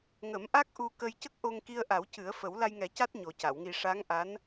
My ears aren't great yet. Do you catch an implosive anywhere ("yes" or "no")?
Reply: no